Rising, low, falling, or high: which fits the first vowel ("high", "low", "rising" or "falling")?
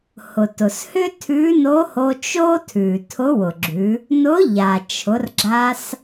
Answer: low